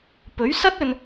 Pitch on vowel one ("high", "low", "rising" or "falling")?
rising